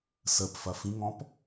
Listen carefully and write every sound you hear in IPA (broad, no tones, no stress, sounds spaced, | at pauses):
s ə p f ɐ f ĩ ŋ ɔ̃ p